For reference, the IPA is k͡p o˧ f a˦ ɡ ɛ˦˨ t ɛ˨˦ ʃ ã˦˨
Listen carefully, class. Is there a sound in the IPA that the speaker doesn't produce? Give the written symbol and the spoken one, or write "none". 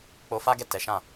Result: none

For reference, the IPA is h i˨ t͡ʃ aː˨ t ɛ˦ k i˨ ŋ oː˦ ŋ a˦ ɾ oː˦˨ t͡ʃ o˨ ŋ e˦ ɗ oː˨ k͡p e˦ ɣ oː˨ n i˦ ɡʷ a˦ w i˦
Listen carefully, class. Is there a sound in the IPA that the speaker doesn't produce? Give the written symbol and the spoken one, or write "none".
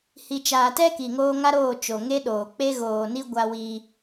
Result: none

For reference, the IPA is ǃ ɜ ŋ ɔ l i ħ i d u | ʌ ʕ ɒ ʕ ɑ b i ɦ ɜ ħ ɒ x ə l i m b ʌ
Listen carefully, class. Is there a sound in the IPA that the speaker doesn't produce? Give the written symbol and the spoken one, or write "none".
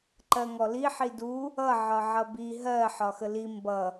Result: ɑ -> ʌ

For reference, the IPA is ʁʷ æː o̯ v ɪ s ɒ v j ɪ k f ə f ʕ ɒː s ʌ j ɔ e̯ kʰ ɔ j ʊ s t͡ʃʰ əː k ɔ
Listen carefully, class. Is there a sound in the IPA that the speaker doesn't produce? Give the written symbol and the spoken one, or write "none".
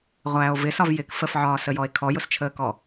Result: ʌ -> ə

